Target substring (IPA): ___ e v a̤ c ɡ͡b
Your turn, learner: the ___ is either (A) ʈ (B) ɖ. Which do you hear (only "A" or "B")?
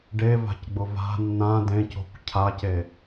B